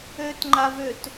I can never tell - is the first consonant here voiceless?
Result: yes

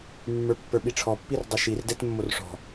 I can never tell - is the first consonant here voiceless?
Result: no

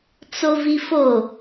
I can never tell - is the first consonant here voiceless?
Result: yes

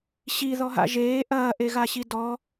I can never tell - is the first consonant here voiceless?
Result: yes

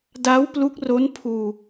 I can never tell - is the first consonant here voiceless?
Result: no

